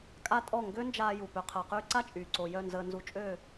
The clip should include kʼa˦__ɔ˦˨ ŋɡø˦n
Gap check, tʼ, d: tʼ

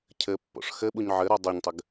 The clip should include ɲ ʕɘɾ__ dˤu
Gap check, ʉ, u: u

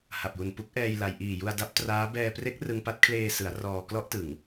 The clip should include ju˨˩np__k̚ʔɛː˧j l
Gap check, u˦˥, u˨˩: u˦˥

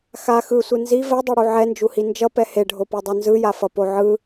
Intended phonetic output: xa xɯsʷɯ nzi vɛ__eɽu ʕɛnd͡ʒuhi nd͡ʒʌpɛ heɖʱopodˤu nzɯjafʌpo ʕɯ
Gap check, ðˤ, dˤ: dˤ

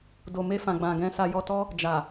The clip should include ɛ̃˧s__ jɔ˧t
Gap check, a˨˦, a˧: a˧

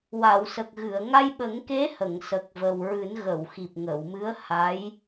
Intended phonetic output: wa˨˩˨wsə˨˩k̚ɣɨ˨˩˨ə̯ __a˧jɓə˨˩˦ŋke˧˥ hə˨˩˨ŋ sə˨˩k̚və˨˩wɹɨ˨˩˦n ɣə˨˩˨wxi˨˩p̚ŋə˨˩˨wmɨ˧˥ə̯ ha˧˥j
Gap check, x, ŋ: ŋ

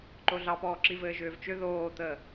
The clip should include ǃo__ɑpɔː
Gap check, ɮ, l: ɮ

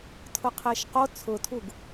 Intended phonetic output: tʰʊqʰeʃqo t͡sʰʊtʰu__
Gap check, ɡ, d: ɡ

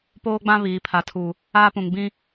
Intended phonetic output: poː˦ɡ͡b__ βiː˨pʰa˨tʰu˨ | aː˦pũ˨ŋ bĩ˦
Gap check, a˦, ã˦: ã˦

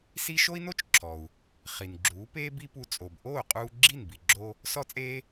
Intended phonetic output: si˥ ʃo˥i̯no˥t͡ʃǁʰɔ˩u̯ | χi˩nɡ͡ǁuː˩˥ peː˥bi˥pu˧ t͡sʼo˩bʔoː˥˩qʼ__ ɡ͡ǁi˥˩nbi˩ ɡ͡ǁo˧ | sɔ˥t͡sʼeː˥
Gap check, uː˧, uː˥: uː˧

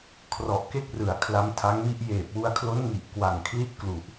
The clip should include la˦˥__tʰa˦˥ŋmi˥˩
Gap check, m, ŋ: m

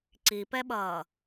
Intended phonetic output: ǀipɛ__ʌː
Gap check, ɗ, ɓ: ɓ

